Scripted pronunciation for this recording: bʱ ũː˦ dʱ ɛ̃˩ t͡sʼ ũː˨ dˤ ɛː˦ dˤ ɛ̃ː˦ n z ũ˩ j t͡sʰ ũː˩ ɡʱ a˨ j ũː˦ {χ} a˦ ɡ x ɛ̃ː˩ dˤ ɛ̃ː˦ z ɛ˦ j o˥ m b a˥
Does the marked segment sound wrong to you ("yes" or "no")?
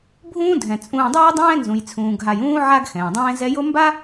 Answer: yes